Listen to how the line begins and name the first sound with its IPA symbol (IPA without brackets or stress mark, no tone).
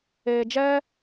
eː